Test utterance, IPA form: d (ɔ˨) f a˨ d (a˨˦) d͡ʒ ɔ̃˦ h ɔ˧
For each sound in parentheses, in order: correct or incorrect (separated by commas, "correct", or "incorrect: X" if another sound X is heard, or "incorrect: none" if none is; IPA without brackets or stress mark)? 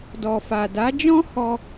correct, correct